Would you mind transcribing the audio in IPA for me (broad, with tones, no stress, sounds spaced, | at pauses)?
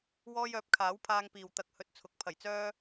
w ɔː˥ j œː˨˥ p̚ kʰ aː˨˥ w pʰ aː˧ ŋ p iː˨ w t̪ ɐ˧ k̚ h ɵ˧ t̚ t͡sʰ ʊ˨˥ k̚ pʰ ɐ˨˩ j t͡s œː˥